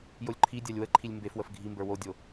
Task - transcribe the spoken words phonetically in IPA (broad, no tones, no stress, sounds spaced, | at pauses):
j o lʲ ǃʰ i dʲ a lʲ w ə ǃʰ i lʲ m b e f w ə f ɡʱ i m b ə˞ w o dʲ o